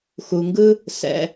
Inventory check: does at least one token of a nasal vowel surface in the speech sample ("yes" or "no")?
no